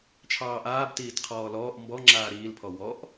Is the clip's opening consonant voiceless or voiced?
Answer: voiceless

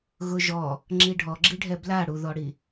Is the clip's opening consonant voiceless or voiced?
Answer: voiced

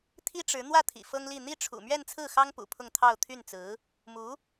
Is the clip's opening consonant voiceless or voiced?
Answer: voiceless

